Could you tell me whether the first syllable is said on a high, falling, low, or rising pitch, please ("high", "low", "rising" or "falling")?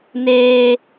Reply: high